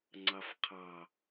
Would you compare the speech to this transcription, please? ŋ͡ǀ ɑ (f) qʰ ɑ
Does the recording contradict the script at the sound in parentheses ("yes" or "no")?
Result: no